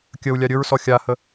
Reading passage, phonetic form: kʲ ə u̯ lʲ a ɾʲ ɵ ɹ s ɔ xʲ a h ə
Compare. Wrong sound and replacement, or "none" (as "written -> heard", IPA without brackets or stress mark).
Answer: none